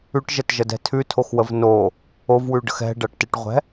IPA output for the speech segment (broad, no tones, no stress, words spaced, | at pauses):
ʉʈʒɛtʒədɛ̤ tʰʉtʰoxwəv no | ovwʉɖə̤x ɛ̤ɖɐʈteʈʁʷɛ̤